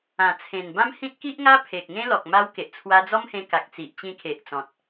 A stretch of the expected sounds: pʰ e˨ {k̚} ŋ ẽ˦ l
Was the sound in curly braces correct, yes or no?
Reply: yes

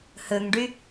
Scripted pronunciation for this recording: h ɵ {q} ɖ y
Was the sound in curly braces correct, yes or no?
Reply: no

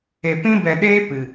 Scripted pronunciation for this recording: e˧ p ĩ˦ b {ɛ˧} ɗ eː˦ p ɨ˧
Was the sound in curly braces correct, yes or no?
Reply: yes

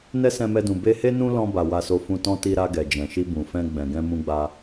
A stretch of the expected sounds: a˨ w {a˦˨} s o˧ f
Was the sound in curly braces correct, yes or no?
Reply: no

